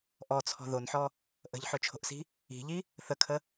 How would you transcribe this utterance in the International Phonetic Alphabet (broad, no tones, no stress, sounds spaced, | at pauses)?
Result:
ʔ ɔ t͡sʰ ɔ̤ ð o n ħ ɔ | ʔ ə̤ ʎ ħ ɵ t͡ʃʰ o̤ ʔ s i̤ | i̤ ʎ i | θ ə kʰ ə